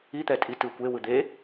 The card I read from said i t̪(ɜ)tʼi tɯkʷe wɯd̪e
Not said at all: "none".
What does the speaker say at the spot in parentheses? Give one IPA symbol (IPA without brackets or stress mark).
ɛ